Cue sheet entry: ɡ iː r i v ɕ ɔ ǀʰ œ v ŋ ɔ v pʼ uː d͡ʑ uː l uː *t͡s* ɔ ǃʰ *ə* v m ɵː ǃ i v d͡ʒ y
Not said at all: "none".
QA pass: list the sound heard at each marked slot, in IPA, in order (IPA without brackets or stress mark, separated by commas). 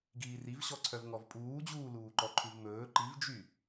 ǃ, ʉ